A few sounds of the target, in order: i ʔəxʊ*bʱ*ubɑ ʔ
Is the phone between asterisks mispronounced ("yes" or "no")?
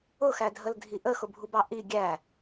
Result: no